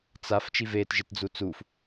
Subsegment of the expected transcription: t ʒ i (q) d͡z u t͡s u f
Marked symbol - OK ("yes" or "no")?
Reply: no